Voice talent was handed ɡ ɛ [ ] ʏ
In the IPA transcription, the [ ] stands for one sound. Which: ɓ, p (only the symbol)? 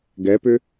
p